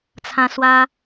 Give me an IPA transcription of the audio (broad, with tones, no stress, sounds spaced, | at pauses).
t͡sʰ ã˧ s w a˧